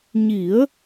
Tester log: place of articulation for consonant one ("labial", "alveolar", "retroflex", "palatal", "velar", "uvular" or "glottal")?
palatal